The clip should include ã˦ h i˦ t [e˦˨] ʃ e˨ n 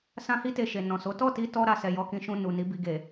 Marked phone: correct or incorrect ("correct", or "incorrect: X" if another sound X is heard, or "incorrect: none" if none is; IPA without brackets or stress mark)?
incorrect: e˧